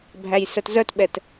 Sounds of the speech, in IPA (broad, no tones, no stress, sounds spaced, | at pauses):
bʱ æ j s œ t z œ t ɓ ɛ t